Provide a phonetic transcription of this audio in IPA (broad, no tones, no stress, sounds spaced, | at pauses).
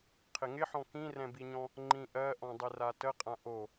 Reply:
qʰ ɪ ŋ ɪ ħ ɔ̃ k ĩ r ɛ̃ b i ɲ ɔ̃ | ŋ͡ǃ ĩ ʔ ɜ ʔ ɔ̃ dˤ ɪ r a t ə qʼ ã ʔ o